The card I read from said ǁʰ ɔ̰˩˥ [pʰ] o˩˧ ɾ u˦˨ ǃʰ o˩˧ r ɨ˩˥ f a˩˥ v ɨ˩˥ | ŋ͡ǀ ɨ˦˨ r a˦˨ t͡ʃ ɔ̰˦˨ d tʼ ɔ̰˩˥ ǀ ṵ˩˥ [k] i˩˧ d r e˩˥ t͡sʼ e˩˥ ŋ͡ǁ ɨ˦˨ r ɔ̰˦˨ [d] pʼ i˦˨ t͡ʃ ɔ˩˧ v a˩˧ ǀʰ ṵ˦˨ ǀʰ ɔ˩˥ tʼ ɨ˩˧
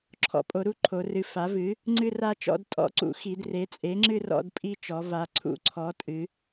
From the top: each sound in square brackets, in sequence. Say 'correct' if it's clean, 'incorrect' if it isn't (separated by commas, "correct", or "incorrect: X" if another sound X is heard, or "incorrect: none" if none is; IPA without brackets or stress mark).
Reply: incorrect: pʼ, incorrect: x, correct